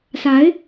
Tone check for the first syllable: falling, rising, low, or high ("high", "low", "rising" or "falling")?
rising